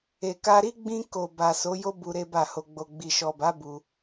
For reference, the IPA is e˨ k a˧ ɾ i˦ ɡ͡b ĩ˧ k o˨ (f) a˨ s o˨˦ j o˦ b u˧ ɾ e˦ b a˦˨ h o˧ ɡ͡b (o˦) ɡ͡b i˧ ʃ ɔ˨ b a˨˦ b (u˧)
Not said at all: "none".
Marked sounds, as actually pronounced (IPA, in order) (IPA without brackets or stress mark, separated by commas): b, o˧, u˧